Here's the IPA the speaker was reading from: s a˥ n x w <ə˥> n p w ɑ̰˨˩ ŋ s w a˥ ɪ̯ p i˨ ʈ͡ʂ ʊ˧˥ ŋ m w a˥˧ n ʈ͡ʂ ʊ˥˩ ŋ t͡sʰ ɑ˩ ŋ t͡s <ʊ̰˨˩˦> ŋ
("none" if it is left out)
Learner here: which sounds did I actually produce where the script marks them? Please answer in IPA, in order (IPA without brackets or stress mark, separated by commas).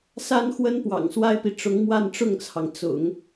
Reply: ə˥, ʊ̰˨˩˦